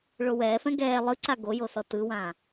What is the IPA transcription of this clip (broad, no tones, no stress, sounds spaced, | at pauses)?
ɭ o w ɛː f ɛ̃ ɡ ɛː lˠ ɯ ǀ a ɡ o j o s ɔ t ɯ w ãː